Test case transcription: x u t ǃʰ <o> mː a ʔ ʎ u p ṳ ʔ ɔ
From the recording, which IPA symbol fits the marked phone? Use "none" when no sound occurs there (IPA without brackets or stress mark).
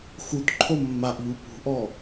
o